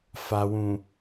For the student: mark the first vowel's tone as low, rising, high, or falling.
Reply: low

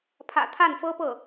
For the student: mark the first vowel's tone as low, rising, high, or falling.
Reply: low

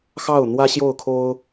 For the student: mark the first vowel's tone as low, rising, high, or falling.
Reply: falling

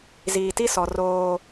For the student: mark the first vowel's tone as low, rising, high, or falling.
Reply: low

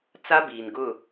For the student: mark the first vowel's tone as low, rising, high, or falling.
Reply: high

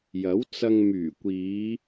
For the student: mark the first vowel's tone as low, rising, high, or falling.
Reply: rising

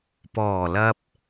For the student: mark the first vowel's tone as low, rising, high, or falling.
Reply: low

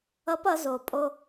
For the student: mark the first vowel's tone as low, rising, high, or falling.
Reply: rising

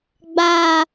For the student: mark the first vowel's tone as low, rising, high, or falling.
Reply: high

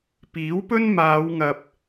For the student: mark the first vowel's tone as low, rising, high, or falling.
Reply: rising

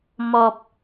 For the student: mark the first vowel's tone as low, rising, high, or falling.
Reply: low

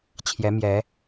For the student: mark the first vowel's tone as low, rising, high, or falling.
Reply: rising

